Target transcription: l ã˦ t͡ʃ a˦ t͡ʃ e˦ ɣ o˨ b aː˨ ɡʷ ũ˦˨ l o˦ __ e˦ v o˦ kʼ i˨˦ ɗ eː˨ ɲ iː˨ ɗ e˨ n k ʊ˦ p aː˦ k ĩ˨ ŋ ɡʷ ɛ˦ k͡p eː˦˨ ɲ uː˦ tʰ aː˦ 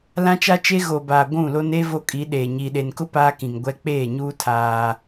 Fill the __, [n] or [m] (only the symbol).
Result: n